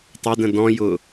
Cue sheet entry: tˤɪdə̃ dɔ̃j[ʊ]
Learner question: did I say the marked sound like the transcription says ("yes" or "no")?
yes